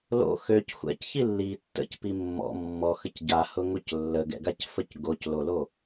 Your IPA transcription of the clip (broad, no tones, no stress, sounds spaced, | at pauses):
l o̰ x ø c xʷ ɛ̰ c ç i lː i tː ə̰ c p i mː ɔ̰ mː ɔ x ə c ɟ a h ʊ ŋ o c lː ə ɡ ɛ̰ ɡ a c f ə c ɡ o c l o l o